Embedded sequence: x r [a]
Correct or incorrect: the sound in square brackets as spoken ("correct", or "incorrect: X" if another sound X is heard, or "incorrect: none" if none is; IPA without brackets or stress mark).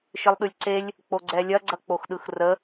incorrect: ə